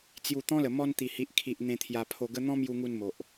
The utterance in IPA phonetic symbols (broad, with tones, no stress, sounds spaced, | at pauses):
t͡s j u˨˩ t̪ ɔ̃˦ l ə˨˩ m ɔ˧ n t̪ i˨˩ h i˨ ʔ kʰ i˨ ʔ n̪ ẽ˧ t̪ʰ j a˧ pʰ o˧ ɡ ə˦ n̪ ɔ̃˦ m j u˧ ŋ u˧ n m o˨ ʔ